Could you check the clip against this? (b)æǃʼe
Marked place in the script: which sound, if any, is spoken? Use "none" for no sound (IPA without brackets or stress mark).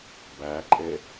b